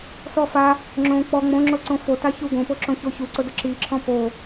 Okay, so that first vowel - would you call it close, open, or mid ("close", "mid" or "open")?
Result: mid